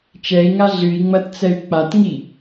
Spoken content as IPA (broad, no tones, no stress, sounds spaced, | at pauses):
t͡ʃ ɛ i̯ ŋ a ɮ ɨ i̯ ŋ͡m ɐ t t͡s ɛ y̯ k͡p a t ŋ i